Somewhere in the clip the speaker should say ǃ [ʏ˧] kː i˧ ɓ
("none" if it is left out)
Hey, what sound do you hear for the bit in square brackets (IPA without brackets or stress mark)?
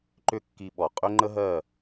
ʏ˥